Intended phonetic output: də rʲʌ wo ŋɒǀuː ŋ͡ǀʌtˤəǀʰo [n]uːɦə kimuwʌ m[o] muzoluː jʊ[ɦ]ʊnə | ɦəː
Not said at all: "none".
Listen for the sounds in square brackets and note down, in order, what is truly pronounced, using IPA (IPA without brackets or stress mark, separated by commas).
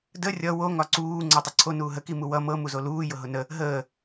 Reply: n, ɤ, ɦ